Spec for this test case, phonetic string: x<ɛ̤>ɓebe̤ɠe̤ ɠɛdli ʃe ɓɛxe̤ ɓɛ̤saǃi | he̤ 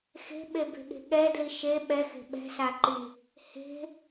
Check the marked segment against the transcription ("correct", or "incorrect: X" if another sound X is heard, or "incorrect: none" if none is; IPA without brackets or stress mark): incorrect: e̤